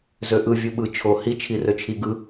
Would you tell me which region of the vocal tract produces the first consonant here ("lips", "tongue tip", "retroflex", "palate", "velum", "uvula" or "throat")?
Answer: tongue tip